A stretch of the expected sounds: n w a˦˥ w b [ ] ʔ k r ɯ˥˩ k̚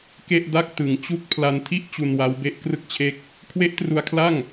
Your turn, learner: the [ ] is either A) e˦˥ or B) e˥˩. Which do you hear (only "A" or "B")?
A